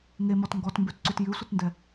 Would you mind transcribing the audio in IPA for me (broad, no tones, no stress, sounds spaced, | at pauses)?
ŋ e m ɔ t ŋ ɡ ɔ t m b ʉ t ǀ ʉ t j ʉ sʷ ə t n d ɛ